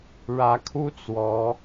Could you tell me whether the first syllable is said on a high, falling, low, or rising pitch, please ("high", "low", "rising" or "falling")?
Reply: rising